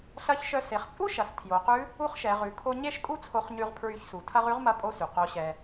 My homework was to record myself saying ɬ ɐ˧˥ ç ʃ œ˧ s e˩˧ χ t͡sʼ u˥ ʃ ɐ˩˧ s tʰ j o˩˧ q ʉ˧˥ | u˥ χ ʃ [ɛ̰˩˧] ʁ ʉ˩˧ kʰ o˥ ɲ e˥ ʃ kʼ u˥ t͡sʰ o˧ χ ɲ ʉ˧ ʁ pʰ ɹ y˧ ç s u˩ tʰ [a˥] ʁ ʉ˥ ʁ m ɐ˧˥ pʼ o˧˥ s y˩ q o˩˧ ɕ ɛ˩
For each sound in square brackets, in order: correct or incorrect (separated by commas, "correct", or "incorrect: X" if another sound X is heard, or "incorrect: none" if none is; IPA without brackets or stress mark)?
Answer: incorrect: ɛ˩˧, incorrect: ɐ˥